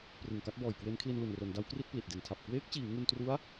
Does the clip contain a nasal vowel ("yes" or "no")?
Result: no